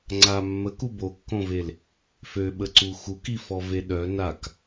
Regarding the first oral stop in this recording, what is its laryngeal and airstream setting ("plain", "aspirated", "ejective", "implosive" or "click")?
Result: click